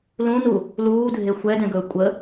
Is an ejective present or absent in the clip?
present